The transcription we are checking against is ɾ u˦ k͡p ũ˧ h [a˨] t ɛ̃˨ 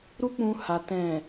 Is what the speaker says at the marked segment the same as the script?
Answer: yes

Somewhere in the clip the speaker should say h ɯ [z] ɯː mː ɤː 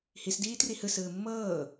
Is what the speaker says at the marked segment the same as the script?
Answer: no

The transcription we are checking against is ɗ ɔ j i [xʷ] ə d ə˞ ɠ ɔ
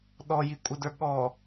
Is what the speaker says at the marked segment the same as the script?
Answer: no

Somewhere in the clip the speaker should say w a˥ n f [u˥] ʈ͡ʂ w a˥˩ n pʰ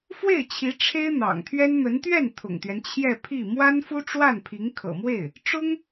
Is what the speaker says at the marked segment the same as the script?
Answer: yes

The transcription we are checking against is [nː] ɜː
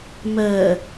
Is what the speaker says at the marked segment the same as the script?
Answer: no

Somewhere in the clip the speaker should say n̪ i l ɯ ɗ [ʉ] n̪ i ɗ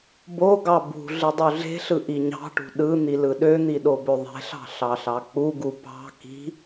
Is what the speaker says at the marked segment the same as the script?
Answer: no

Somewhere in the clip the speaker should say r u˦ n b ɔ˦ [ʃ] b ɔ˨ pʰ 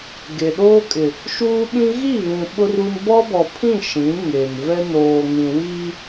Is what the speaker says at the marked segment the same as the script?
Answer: no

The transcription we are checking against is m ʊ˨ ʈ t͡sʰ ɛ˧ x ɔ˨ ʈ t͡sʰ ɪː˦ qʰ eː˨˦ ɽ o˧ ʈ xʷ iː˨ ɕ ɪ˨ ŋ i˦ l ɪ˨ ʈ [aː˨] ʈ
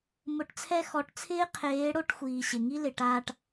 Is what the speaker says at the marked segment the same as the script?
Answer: no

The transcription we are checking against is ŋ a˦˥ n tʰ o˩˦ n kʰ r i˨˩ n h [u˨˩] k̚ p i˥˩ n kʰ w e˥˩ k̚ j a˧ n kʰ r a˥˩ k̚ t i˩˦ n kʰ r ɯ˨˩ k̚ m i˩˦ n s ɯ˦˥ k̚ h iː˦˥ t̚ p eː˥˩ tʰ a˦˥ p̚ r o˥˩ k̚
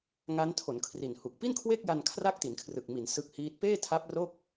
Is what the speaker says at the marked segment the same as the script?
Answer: yes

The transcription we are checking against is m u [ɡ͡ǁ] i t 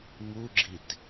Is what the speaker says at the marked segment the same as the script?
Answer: yes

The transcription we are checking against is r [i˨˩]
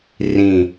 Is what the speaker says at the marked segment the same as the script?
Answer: no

